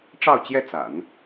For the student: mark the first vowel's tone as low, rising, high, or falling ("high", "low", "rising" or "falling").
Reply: falling